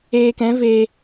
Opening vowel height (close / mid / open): mid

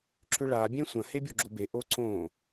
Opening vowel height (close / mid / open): close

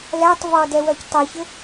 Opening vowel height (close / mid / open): open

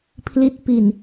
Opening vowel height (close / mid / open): close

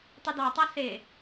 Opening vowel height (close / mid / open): close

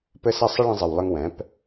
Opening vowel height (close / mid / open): mid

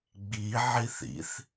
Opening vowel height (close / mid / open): close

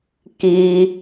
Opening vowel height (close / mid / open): close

